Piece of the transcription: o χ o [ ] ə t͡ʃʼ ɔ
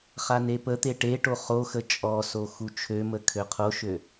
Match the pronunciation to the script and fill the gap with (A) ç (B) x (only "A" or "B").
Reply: B